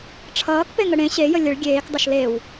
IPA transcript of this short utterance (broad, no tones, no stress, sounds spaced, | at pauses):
ʈ͡ʂʰ ʌː k p e ŋ ə ɽ ẽ ɕ e j ə lʲ ə ɭ ɡʲ eː k dˤ ʌ ʃ l e w